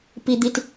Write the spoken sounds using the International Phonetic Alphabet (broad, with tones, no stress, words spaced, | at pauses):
pi˦d̪i˦t